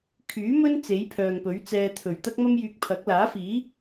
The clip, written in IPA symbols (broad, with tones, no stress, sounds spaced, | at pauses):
kʰ yː˨˥ m ɵ˥ n t͡s e˨˥ j pʰ œː˨ ŋ p ɵ˨˥ ɥ t͡s ɛː˧ t̪ʰ ɵ˨˩ ɥ t̪ ɐ˥ k̚ m ɐ˥ m j yː˧ k̚ pʰ ɐ˨˥ k̚ l aː˨˥ f iː˨˥